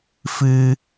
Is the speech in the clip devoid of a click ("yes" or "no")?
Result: yes